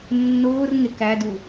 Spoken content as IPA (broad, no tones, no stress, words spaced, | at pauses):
nːʊːr ŋek ædu